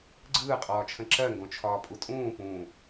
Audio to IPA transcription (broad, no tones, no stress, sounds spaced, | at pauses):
ɡ͡ǀ ɯː qʼ ɒː t͡ʃʰ ə̃ ǁ ɜ ŋ ɡ õ t͡ʃʰ ɒː pʼ u tʼ ũː p ũ